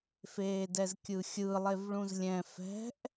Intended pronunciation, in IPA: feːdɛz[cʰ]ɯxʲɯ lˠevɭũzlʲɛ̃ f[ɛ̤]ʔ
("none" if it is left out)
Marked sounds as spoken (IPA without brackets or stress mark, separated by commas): kʲ, ɛ̤